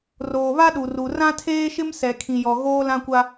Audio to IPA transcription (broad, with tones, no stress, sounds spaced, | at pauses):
r oː˨ β a˦ ɗ u˨ r u˨ r ã˦ tʰ eː˦ ʃ ɪ˦ m s ɛ˨ kʰ ĩ˨ j ɔ˨ ɣ oː˦ l ã˦ kʷ a˦